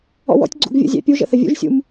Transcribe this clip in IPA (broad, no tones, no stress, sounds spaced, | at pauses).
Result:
ɔ̰ w ɔ̰ tʲ ɡ͡ǀ ṵ ɡ vʲ ṵ zʲ æ̰ pʲ u ʒ ə̰ θ ə vʲ ṵ ʒ sʲ ṵ m